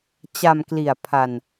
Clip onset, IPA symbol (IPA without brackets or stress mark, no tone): t͡ɕ